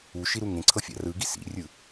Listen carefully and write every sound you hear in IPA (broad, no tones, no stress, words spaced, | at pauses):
uʃiɾu ŋẽǀʰɤfʲa̰ rɯɡi sḭrʲɯ